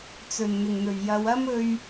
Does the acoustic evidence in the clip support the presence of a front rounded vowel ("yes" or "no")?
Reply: no